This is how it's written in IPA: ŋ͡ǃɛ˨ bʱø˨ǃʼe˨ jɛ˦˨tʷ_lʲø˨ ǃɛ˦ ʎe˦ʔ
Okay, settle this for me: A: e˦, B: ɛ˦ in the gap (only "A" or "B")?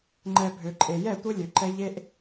A